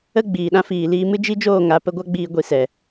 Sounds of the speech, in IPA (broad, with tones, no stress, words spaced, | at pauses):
ə˦ ɡ͡biː˨ɗã˦ fiː˨liː˧mɨ˦ d͡ʒi˦d͡ʒoː˦˨ ŋa˨˦ pə˧ɡʷa˦ ɡ͡biː˧ ɡʷi˧sɛ˨